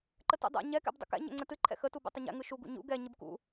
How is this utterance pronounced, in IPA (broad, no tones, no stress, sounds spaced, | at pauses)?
ǃ ə t ṵ dˤ ɛ̰ ɲ ɛ k ɛ̰ b dˤ ə̰ k ɛ̰ ɲ ɛ̰ ŋ͡ǀ ə t ɨ ǃʰ ɛ̰ x ə t u b ṵ tˤ ə ɲ ɛ̰ ŋ ɯ ʃ u ɡ ṵ ɲ ṵ ɡ ɛ ɲ ɯ b k ṵ